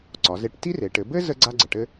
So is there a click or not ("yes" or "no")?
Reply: yes